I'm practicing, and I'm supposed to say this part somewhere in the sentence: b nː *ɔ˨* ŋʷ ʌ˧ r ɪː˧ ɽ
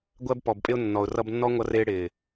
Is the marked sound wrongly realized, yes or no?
yes